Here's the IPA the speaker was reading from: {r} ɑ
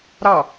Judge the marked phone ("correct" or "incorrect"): incorrect